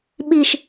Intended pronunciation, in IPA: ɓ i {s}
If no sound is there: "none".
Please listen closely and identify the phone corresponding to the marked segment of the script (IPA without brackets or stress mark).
ʃ